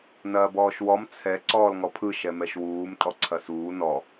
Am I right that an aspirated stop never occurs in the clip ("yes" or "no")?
no